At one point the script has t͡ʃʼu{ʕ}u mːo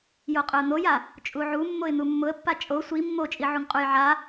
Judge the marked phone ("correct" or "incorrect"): correct